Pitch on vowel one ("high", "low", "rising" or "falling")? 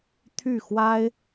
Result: falling